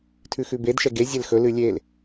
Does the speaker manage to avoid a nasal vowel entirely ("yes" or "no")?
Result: yes